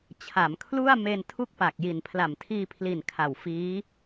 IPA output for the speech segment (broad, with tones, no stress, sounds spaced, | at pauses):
t͡ɕʰ a˩˦ m kʰ l u˥˩ a̯ m e˧ n tʰ u˥˩ k̚ p a˨˩ k̚ j i˨˩ n pʰ l a˨˩ m tʰ iː˧ pʰ l i˨˩ n kʰ a˨˩ w f iː˦˥